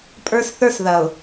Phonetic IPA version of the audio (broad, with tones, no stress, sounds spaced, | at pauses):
pʼ ə˞˦ s θ ə˞˦ s ð ɐ˨ ʊ̯